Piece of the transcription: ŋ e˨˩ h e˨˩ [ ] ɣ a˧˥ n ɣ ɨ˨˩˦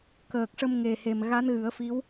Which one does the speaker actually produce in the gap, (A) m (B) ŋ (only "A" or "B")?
A